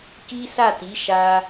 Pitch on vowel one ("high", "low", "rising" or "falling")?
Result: high